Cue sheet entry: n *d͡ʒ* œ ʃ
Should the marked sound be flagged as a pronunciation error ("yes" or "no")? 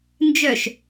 no